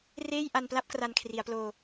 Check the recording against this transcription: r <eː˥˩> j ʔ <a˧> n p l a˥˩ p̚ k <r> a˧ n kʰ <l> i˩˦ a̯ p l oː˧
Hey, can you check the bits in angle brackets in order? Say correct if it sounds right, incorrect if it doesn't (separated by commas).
correct, correct, correct, incorrect